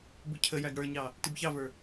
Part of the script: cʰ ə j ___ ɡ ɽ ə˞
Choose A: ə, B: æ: B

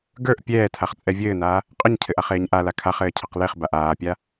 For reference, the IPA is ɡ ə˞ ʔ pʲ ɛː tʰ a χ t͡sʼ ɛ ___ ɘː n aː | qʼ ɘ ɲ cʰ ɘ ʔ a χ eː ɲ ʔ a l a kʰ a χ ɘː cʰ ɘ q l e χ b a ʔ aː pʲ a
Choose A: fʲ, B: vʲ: B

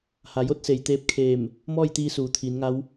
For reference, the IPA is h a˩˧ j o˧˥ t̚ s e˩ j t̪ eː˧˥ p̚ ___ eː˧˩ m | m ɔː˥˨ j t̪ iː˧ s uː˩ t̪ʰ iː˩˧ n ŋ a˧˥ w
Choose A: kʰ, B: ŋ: A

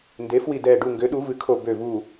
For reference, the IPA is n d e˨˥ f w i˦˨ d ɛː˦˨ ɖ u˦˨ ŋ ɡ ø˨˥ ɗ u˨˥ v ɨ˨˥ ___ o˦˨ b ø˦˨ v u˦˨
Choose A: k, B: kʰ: B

